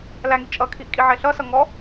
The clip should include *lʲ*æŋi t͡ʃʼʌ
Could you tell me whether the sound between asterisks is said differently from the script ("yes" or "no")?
yes